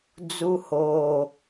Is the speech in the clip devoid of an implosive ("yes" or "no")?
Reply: yes